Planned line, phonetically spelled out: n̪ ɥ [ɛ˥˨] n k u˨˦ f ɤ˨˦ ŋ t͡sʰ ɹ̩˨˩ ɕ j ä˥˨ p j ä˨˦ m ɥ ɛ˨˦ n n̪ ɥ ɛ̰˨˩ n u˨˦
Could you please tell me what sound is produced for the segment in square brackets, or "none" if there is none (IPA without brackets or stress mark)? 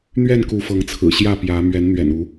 ɛ˥˨